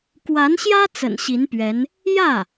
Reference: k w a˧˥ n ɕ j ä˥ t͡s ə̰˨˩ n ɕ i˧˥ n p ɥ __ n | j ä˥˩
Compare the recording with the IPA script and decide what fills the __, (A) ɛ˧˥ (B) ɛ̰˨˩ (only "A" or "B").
A